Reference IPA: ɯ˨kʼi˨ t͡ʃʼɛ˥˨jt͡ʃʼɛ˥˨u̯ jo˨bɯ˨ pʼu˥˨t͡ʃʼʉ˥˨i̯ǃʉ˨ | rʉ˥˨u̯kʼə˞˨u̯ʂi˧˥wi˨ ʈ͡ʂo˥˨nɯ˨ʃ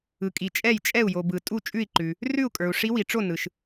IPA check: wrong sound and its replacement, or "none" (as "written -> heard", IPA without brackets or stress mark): pʼ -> tʼ